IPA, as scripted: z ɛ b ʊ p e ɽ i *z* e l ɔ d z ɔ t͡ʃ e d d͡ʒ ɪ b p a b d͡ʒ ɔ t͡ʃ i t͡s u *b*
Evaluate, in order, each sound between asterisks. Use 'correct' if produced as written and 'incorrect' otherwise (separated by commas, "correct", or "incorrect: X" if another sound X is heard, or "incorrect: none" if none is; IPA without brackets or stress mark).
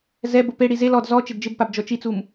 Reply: correct, incorrect: m